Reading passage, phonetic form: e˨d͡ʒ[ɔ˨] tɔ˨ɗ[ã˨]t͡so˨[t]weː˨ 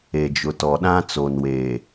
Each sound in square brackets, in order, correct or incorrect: incorrect, incorrect, incorrect

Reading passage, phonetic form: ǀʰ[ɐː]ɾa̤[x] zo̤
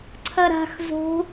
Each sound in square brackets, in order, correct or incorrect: incorrect, correct

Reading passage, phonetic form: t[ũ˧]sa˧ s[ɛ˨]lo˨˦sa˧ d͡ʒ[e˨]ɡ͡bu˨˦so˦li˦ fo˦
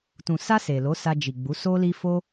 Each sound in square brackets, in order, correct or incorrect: incorrect, incorrect, incorrect

